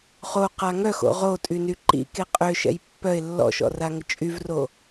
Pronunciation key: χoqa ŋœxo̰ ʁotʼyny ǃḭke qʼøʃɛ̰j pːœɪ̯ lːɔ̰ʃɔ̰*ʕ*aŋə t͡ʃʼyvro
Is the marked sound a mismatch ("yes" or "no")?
yes